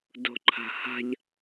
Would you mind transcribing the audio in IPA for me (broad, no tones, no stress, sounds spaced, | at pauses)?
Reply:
d o̤ ǃʰ a̤ h a̤ ʎ